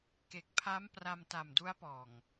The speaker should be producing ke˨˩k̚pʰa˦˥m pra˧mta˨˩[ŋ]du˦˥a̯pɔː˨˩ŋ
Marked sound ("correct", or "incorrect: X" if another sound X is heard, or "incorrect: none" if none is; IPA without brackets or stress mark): incorrect: m